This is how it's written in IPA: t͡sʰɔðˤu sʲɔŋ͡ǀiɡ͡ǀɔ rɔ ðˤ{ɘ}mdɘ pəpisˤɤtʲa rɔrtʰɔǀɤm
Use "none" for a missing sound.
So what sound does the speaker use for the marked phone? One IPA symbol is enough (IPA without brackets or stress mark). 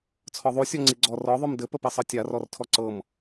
ʉ